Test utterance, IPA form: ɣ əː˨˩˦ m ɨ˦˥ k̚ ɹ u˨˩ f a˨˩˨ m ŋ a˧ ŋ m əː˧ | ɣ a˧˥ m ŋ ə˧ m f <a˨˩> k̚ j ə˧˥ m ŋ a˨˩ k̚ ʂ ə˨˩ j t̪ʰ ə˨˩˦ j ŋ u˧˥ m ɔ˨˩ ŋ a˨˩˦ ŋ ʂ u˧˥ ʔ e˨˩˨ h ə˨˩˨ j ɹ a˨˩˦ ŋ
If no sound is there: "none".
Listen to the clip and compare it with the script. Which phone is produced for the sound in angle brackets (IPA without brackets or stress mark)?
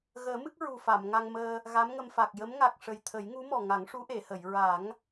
a˨˩